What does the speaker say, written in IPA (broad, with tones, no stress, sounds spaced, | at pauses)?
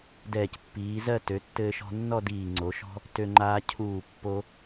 d ɛː˧˩ c pː iː˩˧ z ɜ˥˧ t ø˩˧ tː ɘː˧ ʃ ɔ̤˧ nː ɔ˥˧ d iː˧˩ ŋ͡ǀ o˩˧ ʃ ɔ̤˥ | t ø˧ ŋ͡ǃ aː˧ cʰ uː˧˩ pː o˧